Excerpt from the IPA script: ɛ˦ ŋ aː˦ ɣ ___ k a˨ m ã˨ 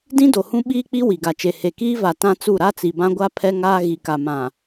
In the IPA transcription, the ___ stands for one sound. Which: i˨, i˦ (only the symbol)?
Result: i˨